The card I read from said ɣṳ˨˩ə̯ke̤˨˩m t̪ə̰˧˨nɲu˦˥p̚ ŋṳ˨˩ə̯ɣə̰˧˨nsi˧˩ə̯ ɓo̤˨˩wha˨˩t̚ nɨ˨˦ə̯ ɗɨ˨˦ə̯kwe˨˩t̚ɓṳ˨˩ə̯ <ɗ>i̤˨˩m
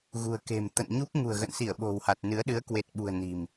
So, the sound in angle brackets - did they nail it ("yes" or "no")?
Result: no